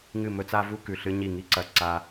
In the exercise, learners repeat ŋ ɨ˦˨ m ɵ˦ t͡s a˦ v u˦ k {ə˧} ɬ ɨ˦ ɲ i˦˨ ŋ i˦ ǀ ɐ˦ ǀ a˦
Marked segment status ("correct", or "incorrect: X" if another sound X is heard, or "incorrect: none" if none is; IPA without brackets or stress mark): incorrect: ʉ˧